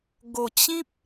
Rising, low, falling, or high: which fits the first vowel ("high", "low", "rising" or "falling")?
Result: low